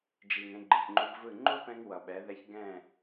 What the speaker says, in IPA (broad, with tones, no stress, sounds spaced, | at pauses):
d͡ʒ i˨ ŋ ẽ˧ ɡ͡ǃ ɯ˨ ç ŋ͡ǃ u˧ b v ɯ˦˨ ŋ͡ǃ u˦ p ɛ̃˧ ŋ w ʌ˨ ɓ ɛ˨˦ ð ɛ˧ ç ɡ ɛ̃˦˨